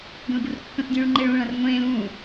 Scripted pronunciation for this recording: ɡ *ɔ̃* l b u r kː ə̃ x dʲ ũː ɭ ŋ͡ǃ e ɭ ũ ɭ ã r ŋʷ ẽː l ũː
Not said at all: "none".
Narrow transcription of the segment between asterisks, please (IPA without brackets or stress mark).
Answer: ə̃